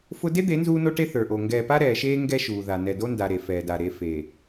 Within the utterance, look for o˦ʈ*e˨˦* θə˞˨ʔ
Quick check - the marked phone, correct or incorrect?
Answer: incorrect